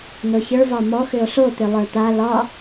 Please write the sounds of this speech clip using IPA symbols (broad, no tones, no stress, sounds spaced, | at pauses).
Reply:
n o ç ə˞ v ɒ m ɔ x ʏ o̯ ɬ o t̪ ʏ lˠ ə˞ t̪ a l ɒ